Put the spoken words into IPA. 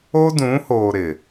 o˦ d ũ˨˦ h oː˨ ɾ ɪ˨

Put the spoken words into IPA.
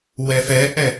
w ɛ f ɛ ʔ ɛ

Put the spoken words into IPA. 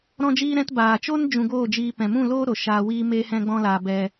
ɾ ɔ̃˧ d͡ʒ iː˧ ɾ ɛ̃˧ t b aː˨ t͡ʃ o˦ n d͡ʒ ũ˧ ɡ oː˦˨ d͡ʒ iː˧ p ɛ̃˨ m ũ˦˨ l oː˦ ɾ o˨ ʃ aː˧ w iː˦ m eː˦ h ɛ̃˦ ɡ͡b ɔ̃˦ l aː˧ b ɛ˧

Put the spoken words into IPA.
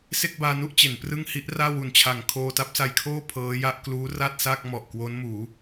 s e˥˩ k̚ b aː˧ n u˥˩ ʔ t͡ɕ e˩˦ n p r ɯ˥˩ ŋ h i˦˥ ʔ r aː˥˩ w u˨˩ n t͡ɕʰ a˨˩ ŋ kʰ oː˧ t a˦˥ p̚ s a˧ j kʰ oː˥˩ pʰ ɤː˦˥ j a˥˩ ʔ k l uː˦˥ r a˥˩ t̚ s a˥˩ k̚ m ɔ˨˩ ʔ k w o˦˥ n m uː˩˦

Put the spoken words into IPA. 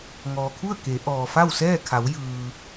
ŋ ɔː˩ kʰ u˥˨ ə̯ k e˩˧ ʔ ɔː˩ f a˥˨ w s ɛː˥˨ kʰ a˩˧ w j ɯː˩

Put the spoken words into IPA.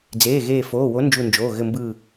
d͡z eː˩˧˩ ɣ eː˧˩ f oː˩˧˩ w o˨˥ n d͡ʒ u˧˩ n d͡ʒ oː˩˧˩ ɣ ɘ˧˩ m b ɯː˧˩

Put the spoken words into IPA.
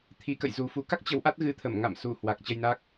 t̪ʰ i˨˦ k ə̰˧˨ j z u˨˩ f u˨˩ k a˦˥ k̚ t͡ɕ ə˨˦ w ʔ a˦˥ t̚ ɣ ɨ˨˦ t̪ʰ ə˧˩ m ŋ a̰˧˨ m s u˧˩ h w a˨˩ k̚ t͡ɕ ə˧ j n a˦˥ k̚

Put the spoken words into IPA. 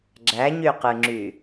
ɡ͡ǁ æ ɲ y q ɯ ŋ͡ǁ y

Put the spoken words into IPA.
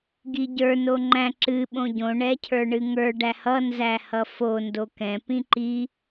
ɡ i ɟ ə˞ n o ŋ͡ǃ æ̃ ǁ ɨ ɓ õ ɟ õ ɳ ɛ cʰ ə˞ ɳ ɨ ŋ ə˞ ɖ æ h ʌ n z æ h ʌ f o n d o k ɛ̃ p ĩ ǃ i

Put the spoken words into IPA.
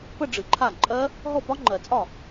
p ə˥˧ ɖ͡ʐ ɨ˨ ǃʰ a˥˩ ǃʼ ɜ˦˥ | ɦ ɔ˥˩ p ɒ˦˥ ŋ͡ǃ ɜ˨˩˦ t͡sʼ ɒ˥˩

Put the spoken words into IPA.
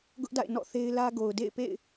ɡ ʊ˦ ʔ d a̰˦˨ ɪ̯ n ɔ̰˦˨ θ e˦ ɪ̯ l ä˦ ɡ o˨ ʊ̯ d ḛ˦˨ ɪ̯ p ḛ˦˨ ɪ̯

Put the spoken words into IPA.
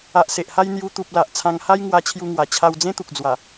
a˨ ʔ s e˨ ʔ h a˧ j n̪ j u˧ t̪ u˨ p̚ l a˨ ʔ t͡sʰ ã˧ ŋ h a˦ j ŋ w a˧ t͡ɕʰ j u˧ ŋ w a˨˩ t͡ɕʰ a˧ w d͡z ẽ˦ t̪ u˨ k̚ d͡z w a˨˩

